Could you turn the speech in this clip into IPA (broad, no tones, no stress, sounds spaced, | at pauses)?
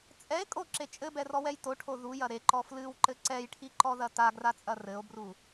t͡sʼ ɛ e̯ kʼ o ǁ e t͡ʃʼ ɘ b ɛ r ɔ w ɛ j t o ʈʰ o ð u j ɐ ɾ e ǃ ɔ f l ɨ w ǃ ɘ ǀ ɛ j ʈʰ i ǃ ɔ ð ɐ t a ɡ r a t͡sʼ ɐ r ɘ o̯ b r u